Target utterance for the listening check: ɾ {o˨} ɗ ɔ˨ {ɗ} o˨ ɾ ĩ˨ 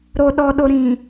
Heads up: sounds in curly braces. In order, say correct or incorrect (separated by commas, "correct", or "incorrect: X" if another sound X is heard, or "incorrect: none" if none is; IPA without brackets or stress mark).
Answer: correct, correct